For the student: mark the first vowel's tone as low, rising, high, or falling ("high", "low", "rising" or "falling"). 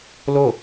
falling